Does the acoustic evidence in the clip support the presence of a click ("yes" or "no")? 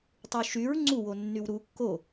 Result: yes